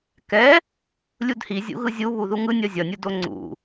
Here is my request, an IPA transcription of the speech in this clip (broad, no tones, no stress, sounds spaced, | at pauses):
k ɛ | lʲ u d h i zʲ ṵ ɣ ɯ zʲ u β u ð u ŋ ɯ nʲ ʌ zʲ ʌ nʲ u d o ŋ͡ǀ ṵ